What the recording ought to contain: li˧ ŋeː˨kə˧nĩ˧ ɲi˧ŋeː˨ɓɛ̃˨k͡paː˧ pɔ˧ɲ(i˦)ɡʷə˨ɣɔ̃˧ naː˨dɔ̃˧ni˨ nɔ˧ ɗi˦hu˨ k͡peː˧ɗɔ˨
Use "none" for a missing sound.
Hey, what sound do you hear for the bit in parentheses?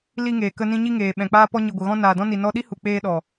i˨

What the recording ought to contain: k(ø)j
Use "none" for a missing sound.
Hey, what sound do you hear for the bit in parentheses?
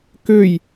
ø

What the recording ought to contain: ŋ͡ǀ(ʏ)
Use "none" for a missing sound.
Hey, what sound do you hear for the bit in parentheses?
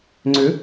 ʏ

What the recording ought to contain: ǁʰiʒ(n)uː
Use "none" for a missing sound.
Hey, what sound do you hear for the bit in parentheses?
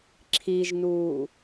n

